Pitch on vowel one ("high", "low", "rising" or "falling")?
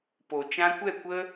low